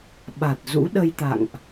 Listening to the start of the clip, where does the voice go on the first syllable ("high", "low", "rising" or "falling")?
low